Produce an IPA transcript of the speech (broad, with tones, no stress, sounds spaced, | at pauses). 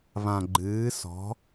β ã˨ ɡ͡ǃ ɨː˨˦ s ɔ̤˨˦